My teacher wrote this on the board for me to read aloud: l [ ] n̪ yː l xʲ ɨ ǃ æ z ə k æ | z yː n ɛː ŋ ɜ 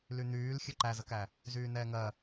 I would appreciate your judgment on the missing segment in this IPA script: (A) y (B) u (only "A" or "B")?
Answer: A